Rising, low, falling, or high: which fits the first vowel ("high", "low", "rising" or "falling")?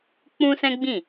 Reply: high